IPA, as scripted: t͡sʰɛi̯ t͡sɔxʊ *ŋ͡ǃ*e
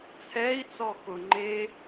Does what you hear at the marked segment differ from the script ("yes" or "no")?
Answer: no